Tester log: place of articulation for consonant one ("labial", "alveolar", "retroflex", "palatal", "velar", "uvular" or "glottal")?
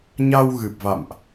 palatal